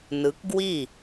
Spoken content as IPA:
n ɯ˨˦ k ɡ w i˥˩

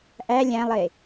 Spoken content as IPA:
ʔ æ lʲ æ̃ lˠ e

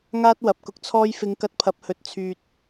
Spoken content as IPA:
ŋ aː˥ t̚ w ɐ˨ p̚ k ʊ˧ k̚ t͡sʰ ɔː˥ j f ɪ˧ ŋ k ɐ˧ t̚ pʰ ɐ˨˥ p̚ h ɵ˨˥ t̚ t͡sʰ yː˧ t̚

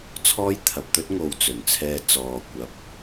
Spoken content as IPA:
t͡sʰ ɔː˥ j t̪ʰ ɐ˨ p̚ t̪ ɵ˥ t̚ ŋ o˨ w t͡s ɵ˨˩ n t͡sʰ ɛː˧ t͡s ɔː˨ kʷ ɐ˨˥ p̚

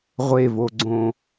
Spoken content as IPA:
ʁʷ e v o ɡ͡ǀ õ

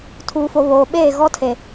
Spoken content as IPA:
tʰ uː˨ f o˨ β oː˨ ɓ eː˦˨ ɣ ɔ˦ tʰ e˨

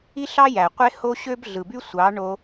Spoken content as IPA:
i˦ ɬ ɑ˦ j æ˨ qʷ e˦ h o˦ ɕ ø˦ b ɮ ɯ˨ b y˦ sʷ ɑ˨˦ ɳ o˧

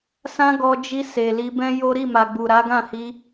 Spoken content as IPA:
s ã˦ ɡ ɔ˧ d͡ʒ i˧ s e˨ l i˧ b ɛ̃˦ j o˦ ɾ i˦˨ m a˨ ɡ͡b u˨ ɾ a˨˦ ɡ ã˦˨ h i˧

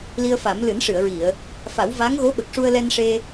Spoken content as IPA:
l i˧ ə̯ f a˨˩˦ m l ɨ˨˩˦ n ʂ ɨ˨˩˨ ə̯ ɹ i˨˩˨ ə̯ | f a˨˩˦ w v a˧˥ ŋ ɣ o˧˥ ɓ ə˨˩ k̚ ʂ u˧ ə̯ l ɛ˧ n ʂ e˧

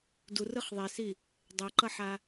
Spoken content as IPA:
d u r ɯ χ ðˤ e s i | dˤ ɛ ǃ ʌ ħ a

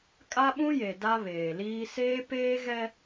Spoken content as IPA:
kʼ a˦ ɓ ũ˦ j e˨ d a˦ β eː˨ l iː˦ s eː˦ p eː˦ ɣ ɛ˦

